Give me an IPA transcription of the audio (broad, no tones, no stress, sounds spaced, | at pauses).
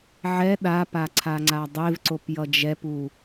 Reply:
ʕ ɛ ɗ a p a ǀʰ a ŋ͡ǀ a dˤ e v ǀ o p j ʌ d͡ʒ ɛ p u